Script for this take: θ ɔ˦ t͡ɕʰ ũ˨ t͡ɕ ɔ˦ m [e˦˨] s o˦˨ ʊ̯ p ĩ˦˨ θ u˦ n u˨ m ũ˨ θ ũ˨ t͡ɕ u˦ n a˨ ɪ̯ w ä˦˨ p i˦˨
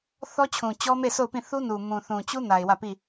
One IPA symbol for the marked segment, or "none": e˦˨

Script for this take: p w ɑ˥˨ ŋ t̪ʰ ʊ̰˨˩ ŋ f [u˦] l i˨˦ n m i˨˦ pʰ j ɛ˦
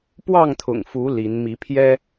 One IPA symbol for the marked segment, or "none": u˨˦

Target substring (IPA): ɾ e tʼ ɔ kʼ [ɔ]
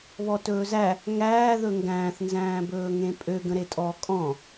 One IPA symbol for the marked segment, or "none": ɔ̃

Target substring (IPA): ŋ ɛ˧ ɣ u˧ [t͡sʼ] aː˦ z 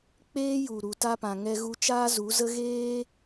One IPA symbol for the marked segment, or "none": t͡ʃ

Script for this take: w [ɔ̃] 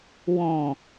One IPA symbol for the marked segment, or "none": ɔ̃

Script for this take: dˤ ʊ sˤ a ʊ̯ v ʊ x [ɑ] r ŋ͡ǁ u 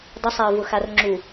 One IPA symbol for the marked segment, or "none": a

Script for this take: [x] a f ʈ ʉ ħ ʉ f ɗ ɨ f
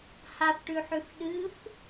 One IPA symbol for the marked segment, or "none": h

